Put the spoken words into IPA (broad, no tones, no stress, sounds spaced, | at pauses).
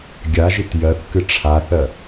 ɡʲ a ʒ i t j ɜ θ k ɨ ʈ͡ʂʰ a θ ɜ